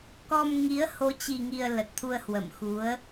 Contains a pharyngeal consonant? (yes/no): no